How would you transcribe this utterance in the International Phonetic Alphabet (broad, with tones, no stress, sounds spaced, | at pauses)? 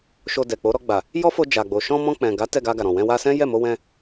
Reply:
ʃ o˧ d ɛ˨ k͡p o˨˦ ɾ ɔ˧ ɡ͡b a˨ | j ɔ˦ f o˧ d͡ʒ a˨ ɡ͡b o˨ ʃ ɔ̃˧ m ɔ̃˧ k͡p ɛ̃˨ ɡ a˨˦ t ɛ˦˨ ɡ a˧ ɡ a˨ ɾ ɔ̃˨ w ɛ̃˧ w a˧ s ɛ̃˦ j ɛ˦˨ m o˧ w ɛ̃˧